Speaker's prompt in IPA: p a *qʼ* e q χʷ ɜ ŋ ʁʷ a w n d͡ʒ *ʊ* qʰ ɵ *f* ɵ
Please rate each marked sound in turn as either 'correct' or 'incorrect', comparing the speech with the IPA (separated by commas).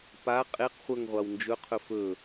correct, incorrect, correct